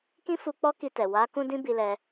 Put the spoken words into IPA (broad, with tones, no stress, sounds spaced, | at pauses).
k ĩ˦ f u˧ k͡p ɔ˦ k i˧ t ɛ˨ w a˨˦ k ũ˦ d ĩ˦ b i˧ l ɛ˧